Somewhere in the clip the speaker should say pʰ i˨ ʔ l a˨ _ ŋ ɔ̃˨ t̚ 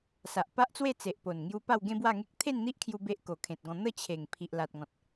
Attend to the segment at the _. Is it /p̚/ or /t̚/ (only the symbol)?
t̚